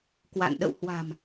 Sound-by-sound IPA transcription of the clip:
kwa̰˧˨n ɗə̰˧˨w hwa̤˨˩m

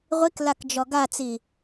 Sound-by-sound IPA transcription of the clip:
ʁʷiklakd͡ʒɔ ɡat͡si

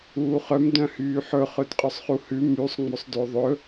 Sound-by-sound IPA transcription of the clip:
uːχœm dœ̃hyːħɵ χɵdqʼœsˤχuhʉ mysˤ ŋ͡mɵsˤdøðˤɵ

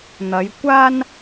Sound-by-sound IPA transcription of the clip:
n̪ɐ˨˧jkʷaː˥n

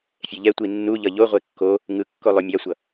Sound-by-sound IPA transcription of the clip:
fʲɛʎɛtʷi nːuʎʌ ʎoʁʷe kːo | ŋɯkːo lˠomʲasʷʌ

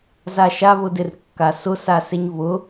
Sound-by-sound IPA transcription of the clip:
zaʃa βʊdɪr kːasʊsaseɲ βʊ

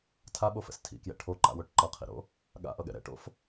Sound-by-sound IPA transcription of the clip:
tʰaɓofɛ̰s tʰḭkjɛ̰ ʈʰoǃa̰woʈ ǃʌqʰḭɾo̰ | ɠa̰ʔʌɠɛ̰ ɾɛ̰ʈo̰f

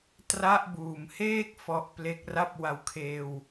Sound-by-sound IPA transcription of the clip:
tra˦˥ʔbuː˨˩mheː˥˩k̚ fɔ˦˥ʔple˦˥k̚ ra˥˩p̚wa˧w kʰeː˧w

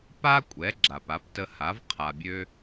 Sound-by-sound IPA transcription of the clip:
pa˥kʷʼɛ˩˥ ɡ͡ǁa˩pa˩˥ptə˧ha˩˥v qʰa˩bʲø˧

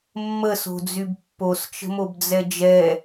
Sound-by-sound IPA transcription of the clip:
mːəso̤d͡zyb pːost͡ʃə̤mobd͡zɛ d͡ʒɛ

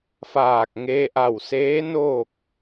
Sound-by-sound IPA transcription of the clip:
faː˧˩k̚ ŋeː˧ʔa˧˩wseː˧˥ noː˥˨k̚

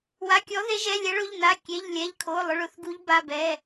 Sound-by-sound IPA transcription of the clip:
wa˩˧˩kʲɔ˨˦ ðe˨˦ʒɛ˩˧˩lʲɛ˨˦ɭʊ˩˧˩ʎ na˩˧˩kʲe˩˧˩ʎlʲɛ˩˧˩ʎkʰo˩˧˩ lˠʊ˩˧˩ɭʊ˨˦θɡu˨˦ʎ ba˩˧˩bɛ˩˧˩

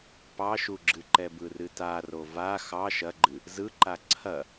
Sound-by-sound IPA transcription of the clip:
pɑʃuɡ͡ǁɨǃɛ bɯrɨtaro va xɑ ʃɐɡ͡ǃɨ | zɯǃa ǀʰɐ

